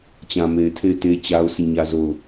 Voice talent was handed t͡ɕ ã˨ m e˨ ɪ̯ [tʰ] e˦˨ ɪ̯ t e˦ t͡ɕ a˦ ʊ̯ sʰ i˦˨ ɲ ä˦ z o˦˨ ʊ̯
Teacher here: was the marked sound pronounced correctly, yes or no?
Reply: yes